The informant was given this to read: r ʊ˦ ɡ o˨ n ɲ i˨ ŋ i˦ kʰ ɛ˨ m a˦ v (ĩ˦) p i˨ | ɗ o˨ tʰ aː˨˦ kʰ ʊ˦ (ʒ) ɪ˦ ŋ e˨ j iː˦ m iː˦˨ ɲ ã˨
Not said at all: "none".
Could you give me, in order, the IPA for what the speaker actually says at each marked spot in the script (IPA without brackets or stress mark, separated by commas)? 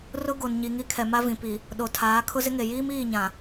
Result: ĩ˨, z